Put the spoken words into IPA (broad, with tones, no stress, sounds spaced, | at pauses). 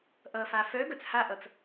ʔ ʌ˩ f a˩ f œ˨˦ ɡ œ˩ t͡s h a˥˧ ʔ ʌ˩ t͡s